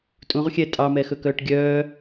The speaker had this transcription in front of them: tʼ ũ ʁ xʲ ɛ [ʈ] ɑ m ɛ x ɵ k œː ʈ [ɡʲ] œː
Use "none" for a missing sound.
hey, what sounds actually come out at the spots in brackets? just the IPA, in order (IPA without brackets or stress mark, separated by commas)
tʼ, ɡʲ